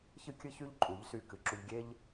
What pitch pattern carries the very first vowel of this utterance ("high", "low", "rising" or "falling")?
high